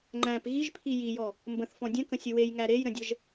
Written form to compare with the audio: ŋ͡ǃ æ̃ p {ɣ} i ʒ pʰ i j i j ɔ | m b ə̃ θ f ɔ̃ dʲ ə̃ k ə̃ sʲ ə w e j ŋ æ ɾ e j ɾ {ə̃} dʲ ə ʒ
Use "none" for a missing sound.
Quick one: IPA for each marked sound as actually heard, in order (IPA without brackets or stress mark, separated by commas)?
ɣ, ə̃